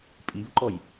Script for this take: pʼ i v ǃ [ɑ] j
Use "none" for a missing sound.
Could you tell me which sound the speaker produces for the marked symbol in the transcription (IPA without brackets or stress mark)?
ɔ